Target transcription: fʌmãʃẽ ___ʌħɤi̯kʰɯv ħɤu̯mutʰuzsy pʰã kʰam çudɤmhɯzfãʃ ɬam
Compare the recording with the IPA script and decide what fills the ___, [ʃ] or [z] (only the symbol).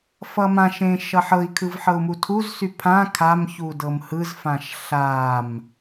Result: ʃ